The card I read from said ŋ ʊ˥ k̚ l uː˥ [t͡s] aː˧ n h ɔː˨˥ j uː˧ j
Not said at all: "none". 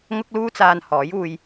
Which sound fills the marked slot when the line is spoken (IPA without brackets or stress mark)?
t͡s